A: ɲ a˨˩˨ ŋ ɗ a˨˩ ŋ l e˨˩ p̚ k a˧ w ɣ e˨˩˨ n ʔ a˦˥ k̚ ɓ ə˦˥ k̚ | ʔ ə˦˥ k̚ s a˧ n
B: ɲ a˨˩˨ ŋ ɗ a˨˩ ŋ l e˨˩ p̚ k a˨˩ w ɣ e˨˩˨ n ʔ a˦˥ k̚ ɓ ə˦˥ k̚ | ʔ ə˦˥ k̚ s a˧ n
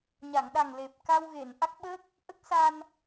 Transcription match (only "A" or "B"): A